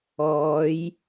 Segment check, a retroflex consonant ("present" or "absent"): absent